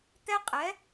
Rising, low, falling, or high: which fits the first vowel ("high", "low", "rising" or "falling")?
high